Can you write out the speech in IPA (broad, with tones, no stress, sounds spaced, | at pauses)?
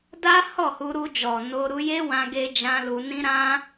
d a˦ h ɔ˦˨ h u˧ ɾ u˧ d͡ʒ ɔ˨ n o˧ ɾ u˧ j e˦ w ã˧ ɡ e˧ d͡ʒ ã˦ l u˧ n ĩ˦ ɾ ã˦